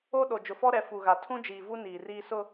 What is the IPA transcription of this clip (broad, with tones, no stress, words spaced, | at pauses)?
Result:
o˦ ɗo˨ d͡ʒʊ˨fɔ˦ɾɛ˨˦ fu˨ɣa˨ tʰũ˦d͡ʒiː˨vu˦ niː˨riː˦ sʊ˦